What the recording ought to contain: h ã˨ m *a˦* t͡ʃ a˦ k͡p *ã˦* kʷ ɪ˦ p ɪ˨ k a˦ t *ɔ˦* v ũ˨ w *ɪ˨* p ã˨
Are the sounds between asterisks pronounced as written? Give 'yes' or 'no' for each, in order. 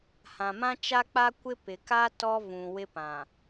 no, no, yes, no

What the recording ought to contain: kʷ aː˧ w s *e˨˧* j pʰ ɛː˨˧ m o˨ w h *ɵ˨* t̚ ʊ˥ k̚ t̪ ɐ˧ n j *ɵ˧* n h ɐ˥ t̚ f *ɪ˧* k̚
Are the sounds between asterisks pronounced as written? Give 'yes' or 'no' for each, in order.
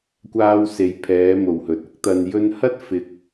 yes, yes, yes, yes

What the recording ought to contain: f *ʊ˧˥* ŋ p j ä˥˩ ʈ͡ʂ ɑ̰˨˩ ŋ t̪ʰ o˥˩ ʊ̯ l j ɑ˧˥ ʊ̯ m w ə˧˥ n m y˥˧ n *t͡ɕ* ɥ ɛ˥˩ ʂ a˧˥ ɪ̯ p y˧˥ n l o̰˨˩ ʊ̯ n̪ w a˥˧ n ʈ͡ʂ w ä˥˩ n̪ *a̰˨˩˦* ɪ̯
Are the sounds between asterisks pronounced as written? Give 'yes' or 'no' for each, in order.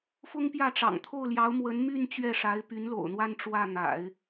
no, yes, yes

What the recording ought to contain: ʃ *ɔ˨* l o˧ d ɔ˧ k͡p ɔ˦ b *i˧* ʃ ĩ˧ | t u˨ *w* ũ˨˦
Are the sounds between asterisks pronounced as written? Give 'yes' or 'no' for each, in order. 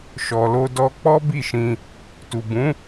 yes, no, no

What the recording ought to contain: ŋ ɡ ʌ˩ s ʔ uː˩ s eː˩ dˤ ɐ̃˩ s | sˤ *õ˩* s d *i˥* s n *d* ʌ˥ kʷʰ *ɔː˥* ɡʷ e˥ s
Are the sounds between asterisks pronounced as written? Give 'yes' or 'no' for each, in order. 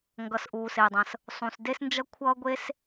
no, no, no, no

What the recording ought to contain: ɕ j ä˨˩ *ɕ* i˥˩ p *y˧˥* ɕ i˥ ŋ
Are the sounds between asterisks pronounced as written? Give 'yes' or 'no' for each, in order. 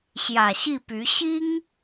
yes, yes

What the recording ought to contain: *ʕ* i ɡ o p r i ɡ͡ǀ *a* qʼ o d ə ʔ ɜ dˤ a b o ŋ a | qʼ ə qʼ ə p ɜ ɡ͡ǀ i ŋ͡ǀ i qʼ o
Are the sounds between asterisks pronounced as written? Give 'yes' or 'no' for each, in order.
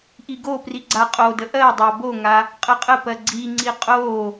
no, yes

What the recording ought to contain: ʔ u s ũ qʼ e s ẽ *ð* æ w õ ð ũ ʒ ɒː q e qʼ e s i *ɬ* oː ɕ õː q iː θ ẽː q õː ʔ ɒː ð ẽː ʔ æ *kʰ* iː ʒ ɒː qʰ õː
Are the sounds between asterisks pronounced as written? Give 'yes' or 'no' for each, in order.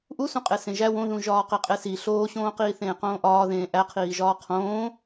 no, yes, no

